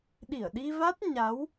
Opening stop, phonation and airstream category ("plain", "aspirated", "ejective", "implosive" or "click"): implosive